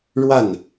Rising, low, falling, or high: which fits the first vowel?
falling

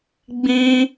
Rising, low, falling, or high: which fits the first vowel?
high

